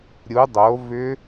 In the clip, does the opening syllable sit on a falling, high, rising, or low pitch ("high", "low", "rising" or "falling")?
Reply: rising